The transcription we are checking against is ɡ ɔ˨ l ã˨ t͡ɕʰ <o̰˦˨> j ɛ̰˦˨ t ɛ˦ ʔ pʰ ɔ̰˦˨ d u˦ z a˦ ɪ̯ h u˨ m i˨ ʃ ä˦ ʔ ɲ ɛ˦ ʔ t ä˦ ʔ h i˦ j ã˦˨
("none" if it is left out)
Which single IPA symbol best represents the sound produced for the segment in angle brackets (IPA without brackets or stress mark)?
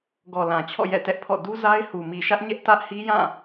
ɔ̰˦˨